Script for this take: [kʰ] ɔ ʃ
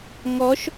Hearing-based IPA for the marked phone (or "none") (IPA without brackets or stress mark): ŋ